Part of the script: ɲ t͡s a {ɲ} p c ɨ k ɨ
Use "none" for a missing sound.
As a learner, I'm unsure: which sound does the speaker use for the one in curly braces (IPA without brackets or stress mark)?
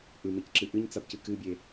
none